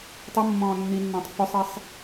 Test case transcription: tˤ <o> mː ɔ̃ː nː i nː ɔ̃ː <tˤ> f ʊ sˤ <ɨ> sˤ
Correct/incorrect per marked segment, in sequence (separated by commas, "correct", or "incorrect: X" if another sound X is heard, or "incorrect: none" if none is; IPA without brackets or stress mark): incorrect: u, correct, incorrect: i